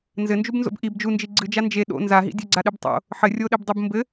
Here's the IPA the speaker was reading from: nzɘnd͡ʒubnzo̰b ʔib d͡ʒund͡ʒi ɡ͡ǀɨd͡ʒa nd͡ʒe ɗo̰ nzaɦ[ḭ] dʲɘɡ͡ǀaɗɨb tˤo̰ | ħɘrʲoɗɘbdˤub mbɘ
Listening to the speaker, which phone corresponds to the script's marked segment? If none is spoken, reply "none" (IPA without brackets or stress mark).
ḭ